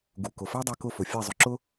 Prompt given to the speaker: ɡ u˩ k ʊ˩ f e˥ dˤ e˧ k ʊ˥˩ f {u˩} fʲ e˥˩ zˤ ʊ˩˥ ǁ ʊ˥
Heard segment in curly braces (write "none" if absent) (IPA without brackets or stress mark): ʊ˩